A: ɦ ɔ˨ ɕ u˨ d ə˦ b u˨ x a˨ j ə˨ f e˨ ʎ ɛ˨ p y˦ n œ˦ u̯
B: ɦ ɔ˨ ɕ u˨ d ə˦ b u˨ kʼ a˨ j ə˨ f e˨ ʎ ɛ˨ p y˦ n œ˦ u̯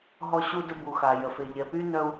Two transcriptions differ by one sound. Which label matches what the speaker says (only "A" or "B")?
A